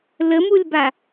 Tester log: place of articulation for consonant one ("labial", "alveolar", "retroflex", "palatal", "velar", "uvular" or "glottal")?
alveolar